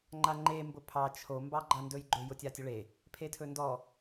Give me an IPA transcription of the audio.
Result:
ŋ͡ǃ a ŋ͡ǃ e m b ʊ pʰ ɑ t͡ʃʰ o m b ɑ ɡ͡ǃ a n d ɵ j ɡ͡ǃ ɵ j ʊ tʲ a tʲ ʊ ɭ e | pʰ e tʰ ɵ n d ɔ

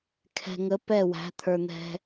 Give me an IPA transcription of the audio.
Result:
kʰ ɛ̤˨ ŋ ə˨˦ p ɛ˦˨ w æ̤˨˦ t̪ʰ ə˞˨ n̪ ɛ̤˧

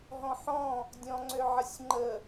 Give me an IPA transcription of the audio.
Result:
ɦ ɔ̃ ħ ɔ̃ | dʲ ɔ̃ ŋ͡ǀ ø ʕ ə sʲ ŋ͡ǃ ə

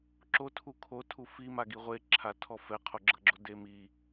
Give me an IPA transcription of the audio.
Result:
ǁ o tʰ u kʰ o tʰ u f i m a ɡ i ʁʷ e ǁʰ a tʰ ɔ f ɛ qʰ o ɡ͡ǁ ɤ ɡ͡ǁ o d e m i

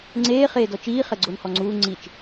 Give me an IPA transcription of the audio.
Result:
ŋ͡ǀ eː χ eː d ɔ t͡ʃ iː χ ɛ ɡ͡ǀ o n h ɔ ŋ͡ǀ uː ŋ͡ǀ i t͡ʃ

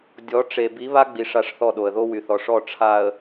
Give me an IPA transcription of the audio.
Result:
dʲ ɔ˨˦ ʈ͡ʂ e˨ b i˨˦ β a˦ ɡ͡b i˨ ʂ a˦˨ ʂ θ ɔ˦˨ ɗ o˨ ə̯ ð o˦ w y˨ θ ɔ˨ ʂ ɔ˦˨ ʈ͡ʂʰ a˨ ə̯

